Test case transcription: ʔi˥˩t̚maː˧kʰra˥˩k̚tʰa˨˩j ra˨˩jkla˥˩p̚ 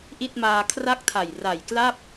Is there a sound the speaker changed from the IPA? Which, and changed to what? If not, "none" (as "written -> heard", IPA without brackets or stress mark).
none